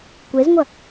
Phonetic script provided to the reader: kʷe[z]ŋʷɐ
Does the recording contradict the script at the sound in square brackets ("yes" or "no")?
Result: no